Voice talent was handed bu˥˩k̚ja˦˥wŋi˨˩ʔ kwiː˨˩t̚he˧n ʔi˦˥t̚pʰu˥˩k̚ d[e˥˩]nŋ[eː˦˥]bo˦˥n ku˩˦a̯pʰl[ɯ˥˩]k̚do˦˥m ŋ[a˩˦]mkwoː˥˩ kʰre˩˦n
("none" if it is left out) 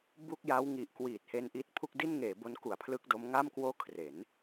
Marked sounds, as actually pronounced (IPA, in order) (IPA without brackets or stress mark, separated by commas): i˥˩, eː˩˦, ɯ˥˩, a˥˩